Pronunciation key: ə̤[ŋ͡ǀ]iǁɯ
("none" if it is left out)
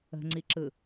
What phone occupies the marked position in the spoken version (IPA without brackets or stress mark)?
ŋ͡ǀ